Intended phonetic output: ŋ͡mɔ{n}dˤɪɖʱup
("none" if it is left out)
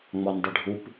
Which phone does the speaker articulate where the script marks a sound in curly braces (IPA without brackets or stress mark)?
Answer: n